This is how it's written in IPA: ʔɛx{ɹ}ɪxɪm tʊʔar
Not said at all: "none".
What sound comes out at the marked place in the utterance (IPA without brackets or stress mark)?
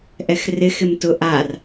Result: r